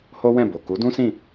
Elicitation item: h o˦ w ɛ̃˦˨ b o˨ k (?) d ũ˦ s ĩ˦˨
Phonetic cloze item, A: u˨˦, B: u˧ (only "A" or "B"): A